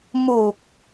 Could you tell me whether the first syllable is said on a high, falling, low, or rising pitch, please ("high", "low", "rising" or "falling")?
low